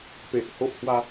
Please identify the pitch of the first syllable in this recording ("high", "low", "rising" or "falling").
low